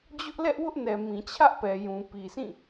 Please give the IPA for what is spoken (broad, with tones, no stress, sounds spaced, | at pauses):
d͡ʑ ʊ˦ ʔ l ɛ˦ ʔ w ʊ˦ ʔ n ɛ˨ m ĩ˨ t͡ɕʰ ä˦ ʔ p ɛ˨ j ũ˨ p i˨ s ĩ˦˨